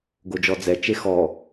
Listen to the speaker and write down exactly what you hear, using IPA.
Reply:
ɡod͡ʒɔd͡zɛ t͡ʃexɔ

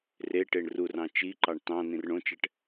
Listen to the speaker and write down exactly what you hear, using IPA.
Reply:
re ʈeɳrurɑ̃ t͡ʃiǃɑɳ tɑ̃ nĩrɳõt͡ʃɛʈ

